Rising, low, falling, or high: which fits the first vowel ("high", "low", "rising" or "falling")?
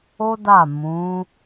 high